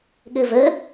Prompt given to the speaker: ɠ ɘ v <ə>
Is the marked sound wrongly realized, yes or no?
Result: no